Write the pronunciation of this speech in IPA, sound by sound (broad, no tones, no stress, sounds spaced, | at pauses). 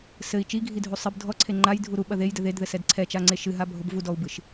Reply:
s ɘ i̯ t͡ʃ i ɡʱ i dʱ u sˤ ɨ b dʱ ɔ ǀʰ e ŋ͡ǃ a j dʱ u ɾ u ɓ ɐ ð e j d ɘ ð e d ð ɘ s ɛ d ǀʰ ɛ t͡ʃ a ŋ͡ǀ e ʃ ɨ ɦ a bʱ o b v u d ɔ u̯ b ɨ ʃ